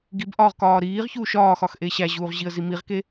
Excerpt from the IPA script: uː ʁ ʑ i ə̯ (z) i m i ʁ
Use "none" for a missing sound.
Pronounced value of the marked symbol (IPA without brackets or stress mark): z